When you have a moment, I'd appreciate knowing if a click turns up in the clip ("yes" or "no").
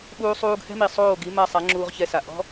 yes